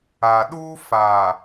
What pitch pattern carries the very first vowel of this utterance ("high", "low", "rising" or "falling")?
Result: low